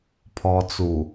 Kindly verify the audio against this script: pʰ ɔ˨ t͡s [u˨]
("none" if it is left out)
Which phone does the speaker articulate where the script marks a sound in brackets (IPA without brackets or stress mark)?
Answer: u˨